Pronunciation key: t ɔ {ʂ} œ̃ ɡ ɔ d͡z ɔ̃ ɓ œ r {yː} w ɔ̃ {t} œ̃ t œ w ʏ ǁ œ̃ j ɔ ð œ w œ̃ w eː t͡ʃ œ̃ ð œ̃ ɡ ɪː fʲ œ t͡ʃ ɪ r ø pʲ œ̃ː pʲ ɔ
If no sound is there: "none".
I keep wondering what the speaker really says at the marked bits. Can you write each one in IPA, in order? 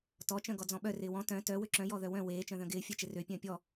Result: t͡ʃ, ɪː, t

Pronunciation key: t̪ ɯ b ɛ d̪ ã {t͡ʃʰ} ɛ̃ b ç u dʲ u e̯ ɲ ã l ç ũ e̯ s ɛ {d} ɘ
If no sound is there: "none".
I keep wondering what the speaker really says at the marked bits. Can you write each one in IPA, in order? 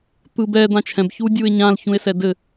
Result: t͡ʃʰ, d

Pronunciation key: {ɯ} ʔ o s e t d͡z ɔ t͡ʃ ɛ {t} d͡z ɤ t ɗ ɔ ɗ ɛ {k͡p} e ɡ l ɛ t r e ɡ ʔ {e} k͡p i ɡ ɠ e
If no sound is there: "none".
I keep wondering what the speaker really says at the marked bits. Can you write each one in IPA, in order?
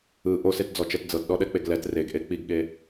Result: ɯ, t, k͡p, e

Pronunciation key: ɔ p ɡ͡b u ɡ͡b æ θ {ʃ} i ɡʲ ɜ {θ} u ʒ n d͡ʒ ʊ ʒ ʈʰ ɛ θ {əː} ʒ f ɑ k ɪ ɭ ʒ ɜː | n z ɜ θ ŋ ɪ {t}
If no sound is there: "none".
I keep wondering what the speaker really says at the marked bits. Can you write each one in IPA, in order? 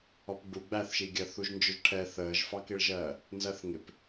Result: ʃ, θ, əː, p

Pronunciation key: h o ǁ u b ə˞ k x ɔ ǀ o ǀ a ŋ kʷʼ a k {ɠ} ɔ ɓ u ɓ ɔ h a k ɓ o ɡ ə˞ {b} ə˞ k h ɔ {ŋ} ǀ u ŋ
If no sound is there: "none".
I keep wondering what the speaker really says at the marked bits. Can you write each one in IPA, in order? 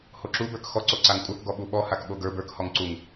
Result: ɡ, b, ŋ

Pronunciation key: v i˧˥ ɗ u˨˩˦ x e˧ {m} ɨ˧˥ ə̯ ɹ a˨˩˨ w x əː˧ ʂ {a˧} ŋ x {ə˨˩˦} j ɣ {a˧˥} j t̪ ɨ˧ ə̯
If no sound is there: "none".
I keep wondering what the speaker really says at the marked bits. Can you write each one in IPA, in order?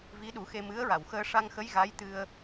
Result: m, a˧, ə˧˥, a˧˥

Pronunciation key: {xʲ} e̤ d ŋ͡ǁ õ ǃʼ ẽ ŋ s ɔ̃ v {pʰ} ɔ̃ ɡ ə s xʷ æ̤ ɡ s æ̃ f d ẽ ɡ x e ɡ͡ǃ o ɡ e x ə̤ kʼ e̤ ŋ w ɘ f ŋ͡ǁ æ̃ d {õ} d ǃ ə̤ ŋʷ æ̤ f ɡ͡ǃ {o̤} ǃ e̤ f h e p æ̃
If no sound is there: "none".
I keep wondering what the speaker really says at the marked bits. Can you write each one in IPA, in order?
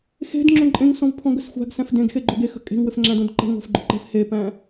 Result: x, pʰ, õ, o

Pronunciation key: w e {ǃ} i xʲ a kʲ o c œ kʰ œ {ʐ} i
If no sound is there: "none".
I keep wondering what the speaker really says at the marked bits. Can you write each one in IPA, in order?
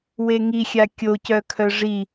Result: ŋ, ʐ

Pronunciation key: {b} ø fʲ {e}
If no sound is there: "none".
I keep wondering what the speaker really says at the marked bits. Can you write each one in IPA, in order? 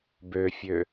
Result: b, ø

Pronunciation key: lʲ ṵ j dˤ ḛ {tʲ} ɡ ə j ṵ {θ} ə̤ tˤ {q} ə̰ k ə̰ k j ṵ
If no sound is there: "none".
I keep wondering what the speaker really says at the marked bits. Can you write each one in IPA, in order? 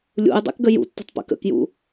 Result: k, tː, p

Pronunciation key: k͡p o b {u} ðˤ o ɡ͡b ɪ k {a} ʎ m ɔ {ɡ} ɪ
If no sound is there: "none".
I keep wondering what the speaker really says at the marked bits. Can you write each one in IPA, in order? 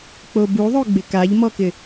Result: u, a, k

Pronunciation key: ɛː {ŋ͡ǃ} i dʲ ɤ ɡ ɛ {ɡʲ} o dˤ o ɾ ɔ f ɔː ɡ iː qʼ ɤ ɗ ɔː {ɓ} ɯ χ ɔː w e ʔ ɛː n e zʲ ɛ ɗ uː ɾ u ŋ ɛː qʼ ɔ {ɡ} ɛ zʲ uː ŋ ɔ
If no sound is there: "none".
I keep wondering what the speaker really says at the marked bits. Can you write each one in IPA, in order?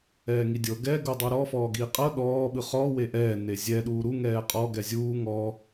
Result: ŋ, ɡ, ɓ, ɡ

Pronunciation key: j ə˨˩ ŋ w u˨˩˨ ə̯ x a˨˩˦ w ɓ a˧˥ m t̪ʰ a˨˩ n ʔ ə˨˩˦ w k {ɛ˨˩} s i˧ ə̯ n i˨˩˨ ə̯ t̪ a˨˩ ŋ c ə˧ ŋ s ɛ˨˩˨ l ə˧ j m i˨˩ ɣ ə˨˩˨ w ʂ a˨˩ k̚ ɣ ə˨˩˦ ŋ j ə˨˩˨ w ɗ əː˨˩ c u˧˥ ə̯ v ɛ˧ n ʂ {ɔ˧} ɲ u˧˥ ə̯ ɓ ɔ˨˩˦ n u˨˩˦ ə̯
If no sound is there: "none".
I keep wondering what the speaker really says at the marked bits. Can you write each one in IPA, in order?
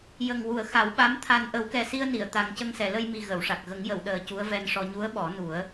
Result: ɛ˨˩, ɔ˧

